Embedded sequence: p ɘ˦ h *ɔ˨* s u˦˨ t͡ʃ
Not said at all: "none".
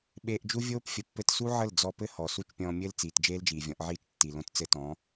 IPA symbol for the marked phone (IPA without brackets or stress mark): ɔ˨